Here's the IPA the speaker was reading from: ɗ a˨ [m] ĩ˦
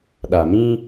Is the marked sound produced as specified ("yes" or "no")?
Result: yes